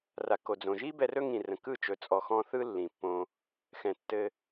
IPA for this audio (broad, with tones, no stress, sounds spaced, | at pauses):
r a˨ k o˨ d͡z õ˨ ʒ i˦ b ɛ˧ r ɵ˦ ŋ ĩ˨ r ə̃˨ k ɯ˦˨ t͡ʃ ɵ˨ t͡sʼ ɔ˨ x ɔ̃˧ θ ɯ˦ lː ĩ˨ pː õ˧ | x ɛ̃˨ tː ɘ˧